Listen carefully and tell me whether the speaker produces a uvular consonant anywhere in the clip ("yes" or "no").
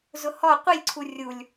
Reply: yes